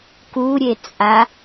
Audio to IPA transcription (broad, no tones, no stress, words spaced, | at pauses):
kuɾʲet͡sʼa